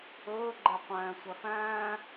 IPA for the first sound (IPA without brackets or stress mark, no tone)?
ɵː